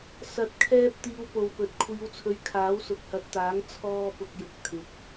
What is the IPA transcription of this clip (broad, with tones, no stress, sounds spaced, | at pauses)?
s ɐ˨˥ t̚ kʰ ɛː˧ p̚ t̪ iː˨˧ w p o˨ w p ɵ˨˥ t̚ kʷʰ iː˨˧ w t͡sʰ ɵ˨˧ ɥ kʰ aː˨˥ w s ʊ˨˥ k̚ h ɐ˨˥ t̚ t̪ aː˨˥ ŋ t͡sʰ ɔː˥ p ʊ˧ k̚ j ʊ˨ k̚ t̪ʰ ɪ˨˥ k̚